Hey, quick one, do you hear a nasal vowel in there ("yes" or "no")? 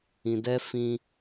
yes